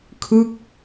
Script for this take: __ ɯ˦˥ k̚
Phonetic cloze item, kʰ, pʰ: kʰ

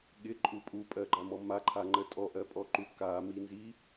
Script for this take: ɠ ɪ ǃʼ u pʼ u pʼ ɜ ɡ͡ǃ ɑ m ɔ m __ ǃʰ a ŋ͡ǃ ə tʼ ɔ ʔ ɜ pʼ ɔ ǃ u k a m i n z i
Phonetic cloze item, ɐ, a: a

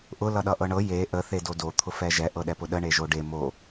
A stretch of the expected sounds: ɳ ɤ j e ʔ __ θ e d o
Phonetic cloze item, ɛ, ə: ə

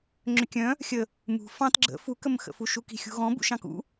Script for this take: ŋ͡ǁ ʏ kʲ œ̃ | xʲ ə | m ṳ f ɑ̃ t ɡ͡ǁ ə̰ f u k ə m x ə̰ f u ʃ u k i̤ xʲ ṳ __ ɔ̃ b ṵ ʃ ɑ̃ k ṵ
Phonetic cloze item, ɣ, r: ɣ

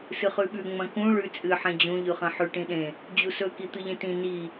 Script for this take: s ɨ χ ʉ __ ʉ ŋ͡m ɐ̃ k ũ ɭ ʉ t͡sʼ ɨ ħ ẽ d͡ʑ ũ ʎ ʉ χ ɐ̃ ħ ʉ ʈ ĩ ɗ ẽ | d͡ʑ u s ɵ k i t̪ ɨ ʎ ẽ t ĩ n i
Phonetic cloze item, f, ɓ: ɓ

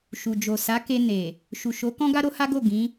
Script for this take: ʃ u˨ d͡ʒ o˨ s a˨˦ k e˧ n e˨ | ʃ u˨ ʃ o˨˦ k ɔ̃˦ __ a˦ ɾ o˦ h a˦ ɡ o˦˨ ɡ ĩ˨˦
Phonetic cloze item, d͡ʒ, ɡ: ɡ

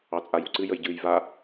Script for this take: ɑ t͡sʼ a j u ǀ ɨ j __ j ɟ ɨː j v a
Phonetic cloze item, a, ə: ə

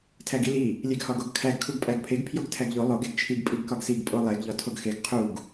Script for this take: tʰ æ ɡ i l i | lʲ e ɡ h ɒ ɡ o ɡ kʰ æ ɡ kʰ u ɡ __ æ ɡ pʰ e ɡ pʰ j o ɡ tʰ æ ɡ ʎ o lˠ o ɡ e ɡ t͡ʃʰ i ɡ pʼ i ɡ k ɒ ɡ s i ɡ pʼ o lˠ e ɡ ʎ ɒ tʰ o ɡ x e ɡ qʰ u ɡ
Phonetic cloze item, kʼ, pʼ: pʼ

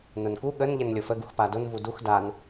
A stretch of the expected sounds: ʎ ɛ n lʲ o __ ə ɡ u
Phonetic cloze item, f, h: f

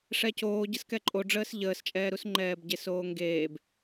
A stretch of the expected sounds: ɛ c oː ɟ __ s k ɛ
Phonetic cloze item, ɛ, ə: ə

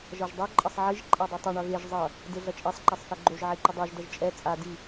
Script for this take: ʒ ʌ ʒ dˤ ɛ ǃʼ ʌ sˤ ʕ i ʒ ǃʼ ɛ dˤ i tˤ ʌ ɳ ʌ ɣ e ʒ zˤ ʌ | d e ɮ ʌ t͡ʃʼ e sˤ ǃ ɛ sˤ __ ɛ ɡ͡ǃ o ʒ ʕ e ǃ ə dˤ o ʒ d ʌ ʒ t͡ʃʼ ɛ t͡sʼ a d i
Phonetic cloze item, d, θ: θ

